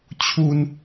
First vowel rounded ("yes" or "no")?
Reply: yes